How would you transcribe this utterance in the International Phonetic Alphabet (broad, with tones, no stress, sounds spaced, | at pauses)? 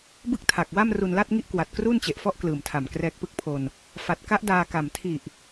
b ɯ˥˩ k̚ tʰ a˨˩ k̚ w a˥˩ m r u˧ n l a˥˩ t̚ ŋ i˥˩ ʔ k w a˨˩ t̚ k r uː˥˩ n t͡ɕ e˨˩ ʔ f ɔ˥˩ ʔ k l ɯː˨˩ m tʰ a˨˩ m k r ɛː˦˥ k̚ p ɯ˥˩ k̚ pʰ o˧ n | f a˨˩ t̚ k a˦˥ ʔ d aː˧ k a˨˩ m tʰ i˨˩ ʔ